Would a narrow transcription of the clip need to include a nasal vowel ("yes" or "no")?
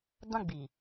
yes